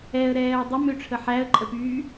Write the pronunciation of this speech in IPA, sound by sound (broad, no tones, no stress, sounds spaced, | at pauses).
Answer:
ɛ ə̯ ɾ ɛː ə̯ dˤ ə m ø ʈ͡ʂʰ ə ħ æ ə̯ ǃʼ ə p yː